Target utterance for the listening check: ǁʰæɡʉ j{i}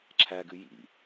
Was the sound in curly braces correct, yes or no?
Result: no